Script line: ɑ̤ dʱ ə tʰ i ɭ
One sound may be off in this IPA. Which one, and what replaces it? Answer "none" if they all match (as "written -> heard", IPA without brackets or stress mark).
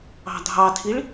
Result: ə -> ɑ